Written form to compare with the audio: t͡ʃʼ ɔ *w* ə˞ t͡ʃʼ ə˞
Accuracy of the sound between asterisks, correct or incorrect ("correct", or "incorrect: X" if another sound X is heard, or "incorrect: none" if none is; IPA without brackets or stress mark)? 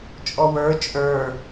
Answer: correct